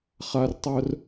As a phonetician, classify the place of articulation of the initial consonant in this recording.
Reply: uvular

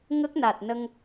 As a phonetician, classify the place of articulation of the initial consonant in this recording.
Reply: velar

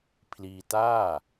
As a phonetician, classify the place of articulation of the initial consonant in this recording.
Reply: labial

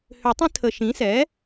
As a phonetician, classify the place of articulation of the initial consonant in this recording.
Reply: glottal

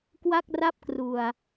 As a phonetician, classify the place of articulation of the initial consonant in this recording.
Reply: velar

